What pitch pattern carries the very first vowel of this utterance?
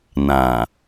low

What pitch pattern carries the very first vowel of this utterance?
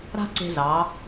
high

